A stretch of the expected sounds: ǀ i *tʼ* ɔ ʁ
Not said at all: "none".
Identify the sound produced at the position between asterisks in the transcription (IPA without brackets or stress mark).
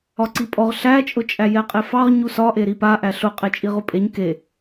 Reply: pʼ